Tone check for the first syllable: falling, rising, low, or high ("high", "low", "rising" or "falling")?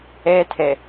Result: high